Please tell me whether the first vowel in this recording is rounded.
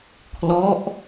yes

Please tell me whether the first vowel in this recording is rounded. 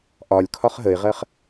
yes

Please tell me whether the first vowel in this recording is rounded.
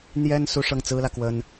no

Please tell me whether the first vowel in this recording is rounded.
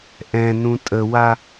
no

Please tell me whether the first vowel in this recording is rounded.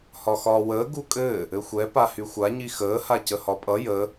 yes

